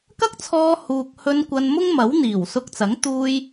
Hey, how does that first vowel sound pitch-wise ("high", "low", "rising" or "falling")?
high